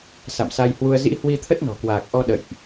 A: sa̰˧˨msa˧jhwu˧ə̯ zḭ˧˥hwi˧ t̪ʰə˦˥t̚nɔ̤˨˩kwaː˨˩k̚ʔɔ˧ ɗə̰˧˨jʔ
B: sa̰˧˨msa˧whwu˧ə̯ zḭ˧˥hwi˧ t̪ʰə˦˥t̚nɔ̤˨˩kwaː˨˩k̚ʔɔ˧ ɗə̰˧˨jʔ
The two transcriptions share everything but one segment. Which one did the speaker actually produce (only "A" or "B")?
A